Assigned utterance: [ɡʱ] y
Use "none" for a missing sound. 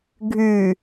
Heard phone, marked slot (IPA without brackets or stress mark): ɡʱ